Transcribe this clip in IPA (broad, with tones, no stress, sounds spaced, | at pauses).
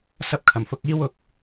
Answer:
s ɐ˧ p̚ kʰ ɐ˨˩ m f ʊ˨ k̚ iː˧ w ʊ˨ k̚